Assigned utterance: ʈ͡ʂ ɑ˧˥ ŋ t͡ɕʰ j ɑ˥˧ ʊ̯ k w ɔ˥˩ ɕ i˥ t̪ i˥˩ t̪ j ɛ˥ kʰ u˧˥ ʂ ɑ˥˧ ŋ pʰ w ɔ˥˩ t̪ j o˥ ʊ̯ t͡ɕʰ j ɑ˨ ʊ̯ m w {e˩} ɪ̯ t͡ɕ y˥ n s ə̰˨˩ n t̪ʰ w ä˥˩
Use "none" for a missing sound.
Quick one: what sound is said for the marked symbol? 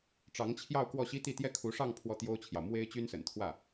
e˥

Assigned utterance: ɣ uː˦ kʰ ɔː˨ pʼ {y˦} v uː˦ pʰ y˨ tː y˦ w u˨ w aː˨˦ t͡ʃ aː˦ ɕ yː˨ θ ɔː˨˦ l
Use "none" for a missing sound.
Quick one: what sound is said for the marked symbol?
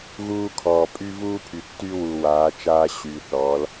y˦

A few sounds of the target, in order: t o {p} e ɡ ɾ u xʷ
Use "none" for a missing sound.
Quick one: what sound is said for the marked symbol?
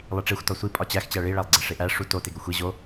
t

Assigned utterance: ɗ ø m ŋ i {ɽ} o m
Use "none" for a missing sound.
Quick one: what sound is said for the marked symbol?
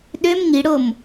ɽ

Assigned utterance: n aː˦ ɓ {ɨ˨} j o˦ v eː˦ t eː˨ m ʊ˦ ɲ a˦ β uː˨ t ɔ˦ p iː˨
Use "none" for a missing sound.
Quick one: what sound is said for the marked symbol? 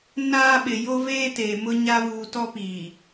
ɪ˨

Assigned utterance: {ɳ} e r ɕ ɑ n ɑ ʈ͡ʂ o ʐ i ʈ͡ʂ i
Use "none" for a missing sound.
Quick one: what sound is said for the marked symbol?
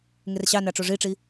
ŋ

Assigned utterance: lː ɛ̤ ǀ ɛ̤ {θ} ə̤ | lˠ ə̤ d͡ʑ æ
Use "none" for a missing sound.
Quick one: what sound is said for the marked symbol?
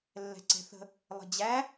θ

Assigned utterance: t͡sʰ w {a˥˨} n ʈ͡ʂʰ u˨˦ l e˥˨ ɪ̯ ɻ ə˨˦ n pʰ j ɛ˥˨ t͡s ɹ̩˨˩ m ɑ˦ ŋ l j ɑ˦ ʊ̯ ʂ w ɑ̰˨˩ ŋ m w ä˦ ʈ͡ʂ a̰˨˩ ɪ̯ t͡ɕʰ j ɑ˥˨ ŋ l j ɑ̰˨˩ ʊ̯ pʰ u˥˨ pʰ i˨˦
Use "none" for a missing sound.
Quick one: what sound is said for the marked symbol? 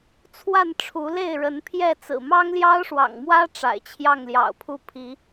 a˥˨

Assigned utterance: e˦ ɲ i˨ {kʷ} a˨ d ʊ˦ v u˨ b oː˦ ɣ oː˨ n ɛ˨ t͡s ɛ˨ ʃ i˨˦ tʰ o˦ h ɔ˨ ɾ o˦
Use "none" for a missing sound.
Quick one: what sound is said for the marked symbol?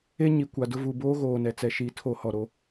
kʷ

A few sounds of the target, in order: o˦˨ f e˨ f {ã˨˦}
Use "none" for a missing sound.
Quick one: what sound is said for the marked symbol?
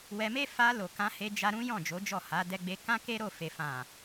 ã˨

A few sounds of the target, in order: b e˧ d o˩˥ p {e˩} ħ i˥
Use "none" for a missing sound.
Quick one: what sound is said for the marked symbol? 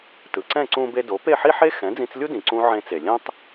e˥˩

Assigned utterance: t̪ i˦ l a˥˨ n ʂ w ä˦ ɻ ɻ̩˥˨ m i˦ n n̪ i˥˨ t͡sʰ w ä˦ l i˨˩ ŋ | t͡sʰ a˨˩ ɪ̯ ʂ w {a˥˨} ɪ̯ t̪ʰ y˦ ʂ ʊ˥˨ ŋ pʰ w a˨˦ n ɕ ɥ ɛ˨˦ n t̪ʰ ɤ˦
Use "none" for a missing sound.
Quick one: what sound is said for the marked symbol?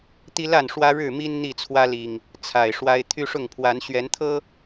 a˦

